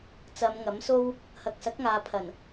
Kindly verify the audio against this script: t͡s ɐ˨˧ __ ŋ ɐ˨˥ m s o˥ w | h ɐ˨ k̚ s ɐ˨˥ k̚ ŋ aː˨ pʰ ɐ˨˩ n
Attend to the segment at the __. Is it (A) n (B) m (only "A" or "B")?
B